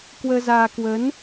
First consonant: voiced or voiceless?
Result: voiceless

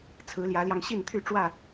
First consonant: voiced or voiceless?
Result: voiceless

